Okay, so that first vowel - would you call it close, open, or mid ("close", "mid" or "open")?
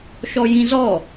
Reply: mid